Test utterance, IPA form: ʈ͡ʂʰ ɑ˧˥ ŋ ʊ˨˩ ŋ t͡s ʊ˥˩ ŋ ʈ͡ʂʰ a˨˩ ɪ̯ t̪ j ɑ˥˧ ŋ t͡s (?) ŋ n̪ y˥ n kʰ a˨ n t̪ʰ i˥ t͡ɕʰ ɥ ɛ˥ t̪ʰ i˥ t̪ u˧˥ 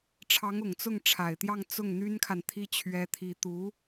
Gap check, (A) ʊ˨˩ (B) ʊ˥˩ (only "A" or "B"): B